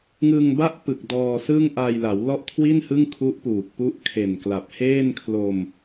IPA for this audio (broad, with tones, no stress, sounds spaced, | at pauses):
ŋ ɯ˧ ŋ b a˦˥ ʔ p ɯ˨˩ k̚ d ɔː˧ s ɯː˥˩ ŋ ʔ a˧ j l a˩˦ w l ɔ˥˩ ʔ kʰ w i˥˩ n h ɯ˥˩ ŋ kʰ u˦˥ ʔ p uː˨˩ k̚ p u˦˥ ʔ kʰ e˨˩ n k l a˨˩ p̚ h eː˥˩ n kʰ l o˧ m